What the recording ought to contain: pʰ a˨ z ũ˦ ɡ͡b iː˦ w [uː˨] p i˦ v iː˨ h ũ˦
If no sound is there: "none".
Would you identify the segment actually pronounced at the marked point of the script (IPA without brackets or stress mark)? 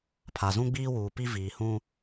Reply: uː˨